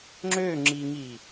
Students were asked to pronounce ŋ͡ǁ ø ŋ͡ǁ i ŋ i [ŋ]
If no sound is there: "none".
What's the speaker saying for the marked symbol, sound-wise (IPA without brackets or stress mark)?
none